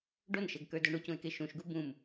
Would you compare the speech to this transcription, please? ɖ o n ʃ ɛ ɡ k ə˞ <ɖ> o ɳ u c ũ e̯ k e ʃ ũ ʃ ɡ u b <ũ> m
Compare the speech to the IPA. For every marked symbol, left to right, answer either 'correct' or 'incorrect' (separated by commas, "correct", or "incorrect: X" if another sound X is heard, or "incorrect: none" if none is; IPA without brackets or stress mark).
incorrect: d, correct